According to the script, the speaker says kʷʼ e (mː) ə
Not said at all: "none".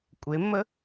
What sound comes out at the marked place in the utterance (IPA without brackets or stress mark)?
mː